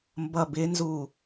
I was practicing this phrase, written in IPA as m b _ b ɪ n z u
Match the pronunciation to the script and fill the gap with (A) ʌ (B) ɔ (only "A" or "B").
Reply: A